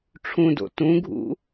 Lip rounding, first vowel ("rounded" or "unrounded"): rounded